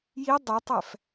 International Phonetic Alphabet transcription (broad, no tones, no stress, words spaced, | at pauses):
ji dˤetˤæf